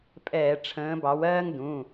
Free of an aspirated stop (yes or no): no